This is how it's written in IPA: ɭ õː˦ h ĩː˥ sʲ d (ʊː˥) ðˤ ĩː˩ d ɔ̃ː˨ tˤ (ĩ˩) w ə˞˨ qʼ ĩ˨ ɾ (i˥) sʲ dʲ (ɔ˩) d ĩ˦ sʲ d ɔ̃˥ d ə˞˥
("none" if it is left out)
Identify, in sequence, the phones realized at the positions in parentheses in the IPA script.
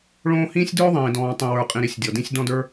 ʊː˥, ĩ˨, i˨, ɔ˩

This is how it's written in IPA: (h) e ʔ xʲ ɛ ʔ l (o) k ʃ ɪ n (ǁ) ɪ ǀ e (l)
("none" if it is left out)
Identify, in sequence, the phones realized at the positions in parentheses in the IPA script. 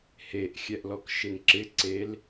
h, ɔ, ǁ, l

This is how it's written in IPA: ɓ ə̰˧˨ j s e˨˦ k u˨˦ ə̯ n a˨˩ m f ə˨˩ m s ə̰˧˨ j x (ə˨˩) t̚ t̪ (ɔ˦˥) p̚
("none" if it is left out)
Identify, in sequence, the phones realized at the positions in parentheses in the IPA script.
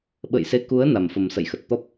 ə˨˩, ɔ˦˥

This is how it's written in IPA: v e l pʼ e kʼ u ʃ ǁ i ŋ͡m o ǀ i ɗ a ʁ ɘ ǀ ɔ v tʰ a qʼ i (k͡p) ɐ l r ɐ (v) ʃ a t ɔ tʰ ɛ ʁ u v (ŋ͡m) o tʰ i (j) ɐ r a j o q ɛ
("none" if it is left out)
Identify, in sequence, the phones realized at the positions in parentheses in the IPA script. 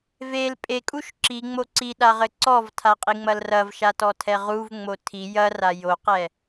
ŋ͡m, v, ŋ͡m, j

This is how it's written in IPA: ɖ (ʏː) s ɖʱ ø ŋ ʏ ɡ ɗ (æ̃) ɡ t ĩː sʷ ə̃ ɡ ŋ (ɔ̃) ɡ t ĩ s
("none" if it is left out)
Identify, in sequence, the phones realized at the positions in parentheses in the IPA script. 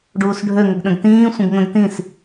uː, ə̃, ə̃

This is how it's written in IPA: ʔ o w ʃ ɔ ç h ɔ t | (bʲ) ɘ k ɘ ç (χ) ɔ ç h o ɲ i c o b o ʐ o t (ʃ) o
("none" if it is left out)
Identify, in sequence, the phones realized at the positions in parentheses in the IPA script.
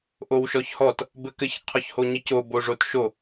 b, qʰ, ʃ

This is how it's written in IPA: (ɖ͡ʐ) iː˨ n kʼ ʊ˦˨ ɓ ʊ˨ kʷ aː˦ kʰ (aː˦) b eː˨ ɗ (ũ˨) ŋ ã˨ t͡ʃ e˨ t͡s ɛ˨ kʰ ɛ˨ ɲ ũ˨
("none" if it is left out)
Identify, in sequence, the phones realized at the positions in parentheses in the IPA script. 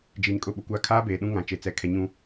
d͡ʒ, aː˦, ũ˦

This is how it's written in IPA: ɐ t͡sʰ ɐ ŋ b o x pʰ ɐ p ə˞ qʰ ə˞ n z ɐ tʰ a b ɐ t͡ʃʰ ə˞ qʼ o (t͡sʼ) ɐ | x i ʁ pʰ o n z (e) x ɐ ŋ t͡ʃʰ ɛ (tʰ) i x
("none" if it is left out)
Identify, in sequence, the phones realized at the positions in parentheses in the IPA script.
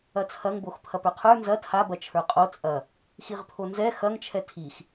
t͡sʼ, ɛ, tʰ

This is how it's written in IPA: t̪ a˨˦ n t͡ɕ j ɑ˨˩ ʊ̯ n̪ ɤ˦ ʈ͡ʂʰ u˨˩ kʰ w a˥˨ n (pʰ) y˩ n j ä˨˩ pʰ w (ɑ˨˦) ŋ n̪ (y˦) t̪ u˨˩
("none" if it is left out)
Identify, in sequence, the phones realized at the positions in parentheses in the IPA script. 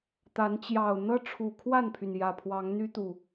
pʰ, ɑ˨˦, y˦

